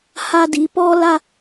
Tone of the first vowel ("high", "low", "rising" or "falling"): high